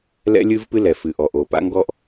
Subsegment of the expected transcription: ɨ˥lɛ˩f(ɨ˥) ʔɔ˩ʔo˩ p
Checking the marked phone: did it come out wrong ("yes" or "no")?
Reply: yes